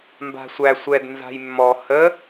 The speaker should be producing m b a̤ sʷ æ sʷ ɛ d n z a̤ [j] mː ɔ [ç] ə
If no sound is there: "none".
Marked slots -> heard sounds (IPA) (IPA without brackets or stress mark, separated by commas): j, h